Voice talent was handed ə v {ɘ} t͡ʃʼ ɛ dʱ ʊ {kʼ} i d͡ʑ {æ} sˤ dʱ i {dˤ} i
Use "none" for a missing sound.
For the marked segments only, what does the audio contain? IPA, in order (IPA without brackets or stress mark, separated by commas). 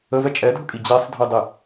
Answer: ɛ, kʼ, æ, dˤ